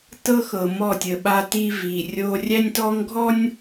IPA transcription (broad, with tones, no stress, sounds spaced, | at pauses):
t ɤ˦ x ɤ˨ m ɔ˦˨ tʲ ə˨ ɓ a˦ t i˦ v i˨ rʲ o˦ rʲ æ˦ nʲ t ɔ˦ ŋ ɡʱ ɔ˦ nʲ